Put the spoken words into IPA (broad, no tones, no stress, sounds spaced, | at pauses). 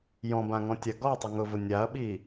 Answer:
j ɔ̃ b ã ŋ ɔ̃ tʲ a ɡ ɔ tˤ ʊ ŋ ʊ v ʊ nʲ a ɐ̯ ɓ i